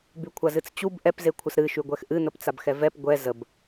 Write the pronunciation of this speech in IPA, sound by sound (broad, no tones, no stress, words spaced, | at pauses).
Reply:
bykʷʰazɨt͡st͡ɕub ʔɛp zekʷʰəsɾɨ ʃyɡʷɛxʔɨ n̪əpt͡sabxɛvɛp ɡʷɛ zəb